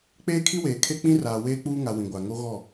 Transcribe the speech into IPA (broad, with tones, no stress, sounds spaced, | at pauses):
k͡p eː˦ kʰ i˦ w eː˨ kʰ e˦ k͡p ĩ˦ r aː˨ w eː˦ k͡p uː˦ ŋ a˨ w ĩ˨ ɡʷ a˨ ŋ o˦ ɣ ɔ˦˨